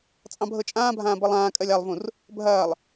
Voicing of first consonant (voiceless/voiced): voiceless